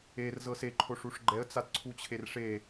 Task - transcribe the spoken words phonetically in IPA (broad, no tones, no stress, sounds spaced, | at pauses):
e r z ɤ s e ǃʰ o ʂ u ʂ ɡ͡ǃ ɛ ə̯ t͡s a t ǀʰ u t͡ɕʰ e r ʂ e